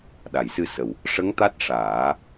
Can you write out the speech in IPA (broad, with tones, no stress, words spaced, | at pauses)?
ɗa˨˩˨jsɨ˧sə˨˩w | ʂə˧˥ŋ t̪a˦˥t̚ʂaː˨˩˦